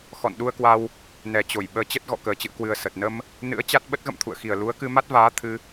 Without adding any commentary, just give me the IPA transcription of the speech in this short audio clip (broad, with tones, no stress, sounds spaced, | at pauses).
x ɔ̰˧˨ n ɗ u˧ ə̯ k w a˧ w | n ɛ˨˩ t͡ɕ o˧˩ j ɓ əː˨˦ t͡ɕ ə˦˥ t̚ ɣ ɔ̰˧˨ k əː˨˩ t͡ɕ ɨ̰˧˨ ə̯ k w ɨ˨˩ ə̯ s ə˨˩ t̚ n ə˧ m | n ɨ̰˧˥ ə̯ t͡ɕ a˦˥ t̚ ɓ ə˦˥ t̚ ɣ ə̰˧˨ m t̪ʰ ṵ˧˨ ə̯ x i˨˩ ə̯ l u˨˦ ə̯ k ɨ˧ m a˦˥ t̚ v aː˨˦ t̪ʰ ɨ˧